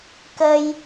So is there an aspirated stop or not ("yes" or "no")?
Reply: no